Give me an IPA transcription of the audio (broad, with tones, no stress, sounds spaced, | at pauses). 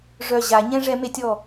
ʐ œ˧˩ ʑ a˨˩˦ ɲ ɛ̃˦ ʐ ɛ˨˦ m e˨˦ tʲ ɔ˧˩